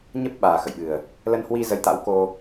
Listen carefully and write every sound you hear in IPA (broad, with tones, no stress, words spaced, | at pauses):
ɲə˦˥p̚ ɓaː˨˩ xə̰˧˨jɓɨ˨˩ə̯ | lə˧nhwi˧ zə˧jt̪a̰˧˥w ko˧